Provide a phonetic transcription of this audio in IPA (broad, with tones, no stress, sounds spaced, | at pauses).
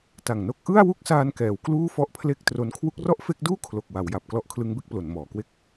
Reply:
t a˨˩ ŋ n o˦˥ k̚ ʔ ɯ˥˩ a̯ w u˥˩ k̚ s aː˧ n k ɛː˩˦ w k l uː˥˩ f ɔ˥˩ ʔ pʰ l e˥˩ k̚ t r o˦˥ n kʰ w u˦˥ k̚ r ɔ˥˩ ʔ f e˦˥ k̚ d uː˥˩ kʰ l o˨˩ k̚ w a˩˦ w j a˨˩ p̚ k l ɔ˦˥ ʔ kʰ l ɯ˦˥ ŋ b e˦˥ k̚ p l o˩˦ n m ɔː˩˦ k w e˥˩ k̚